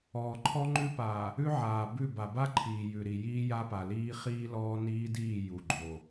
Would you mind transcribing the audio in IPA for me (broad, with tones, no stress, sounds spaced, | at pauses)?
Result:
ɔː˨ ǃʰ ɔ˦ ŋ͡ǃ ʉ˦ p aː˨ | ʉ˦ ʕ aː˨ b ʉ˦˨ b a˨ b a˦ ǃʰ iː˨ j ʉ˨ ɾ i˨ j iː˦ j a˦ p a˨ l iː˦ χ iː˦ l ɔː˦ n iː˦ d iː˦˨ j u˨ ɡ͡ǃ o˨